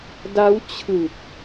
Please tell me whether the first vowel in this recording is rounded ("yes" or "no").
no